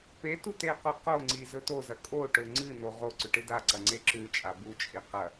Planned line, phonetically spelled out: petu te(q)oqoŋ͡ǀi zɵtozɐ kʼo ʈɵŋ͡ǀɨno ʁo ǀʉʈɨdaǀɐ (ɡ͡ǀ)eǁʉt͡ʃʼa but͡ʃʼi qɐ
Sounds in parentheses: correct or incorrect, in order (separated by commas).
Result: correct, incorrect